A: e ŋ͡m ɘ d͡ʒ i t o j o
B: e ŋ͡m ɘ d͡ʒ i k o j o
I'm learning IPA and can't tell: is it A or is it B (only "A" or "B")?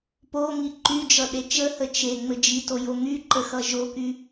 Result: A